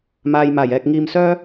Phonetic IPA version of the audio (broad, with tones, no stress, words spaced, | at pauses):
maː˧j maː˨˩jɛː˨k̚ ŋiː˧msœː˥